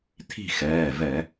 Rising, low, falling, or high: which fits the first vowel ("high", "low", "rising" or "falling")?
falling